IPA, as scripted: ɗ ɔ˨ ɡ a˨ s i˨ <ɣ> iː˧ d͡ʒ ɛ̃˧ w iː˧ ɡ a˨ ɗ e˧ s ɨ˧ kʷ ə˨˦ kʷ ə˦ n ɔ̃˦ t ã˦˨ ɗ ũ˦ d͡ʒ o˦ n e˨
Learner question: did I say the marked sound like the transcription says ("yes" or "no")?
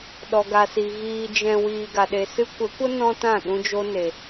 yes